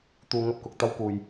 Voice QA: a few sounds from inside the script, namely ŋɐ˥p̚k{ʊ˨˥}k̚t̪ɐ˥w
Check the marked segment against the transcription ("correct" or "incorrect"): incorrect